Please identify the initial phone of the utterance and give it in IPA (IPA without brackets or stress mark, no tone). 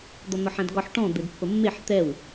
d̪